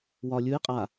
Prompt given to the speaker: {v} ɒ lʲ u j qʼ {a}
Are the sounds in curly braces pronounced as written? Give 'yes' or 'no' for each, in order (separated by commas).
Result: no, yes